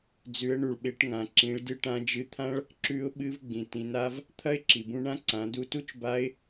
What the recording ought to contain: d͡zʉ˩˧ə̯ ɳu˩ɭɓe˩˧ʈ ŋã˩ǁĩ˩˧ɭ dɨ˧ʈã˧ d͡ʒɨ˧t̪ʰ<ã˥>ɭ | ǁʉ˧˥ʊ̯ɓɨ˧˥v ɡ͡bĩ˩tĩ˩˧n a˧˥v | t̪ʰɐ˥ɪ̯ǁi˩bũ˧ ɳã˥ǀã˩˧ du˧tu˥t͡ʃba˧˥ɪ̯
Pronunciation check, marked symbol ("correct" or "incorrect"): correct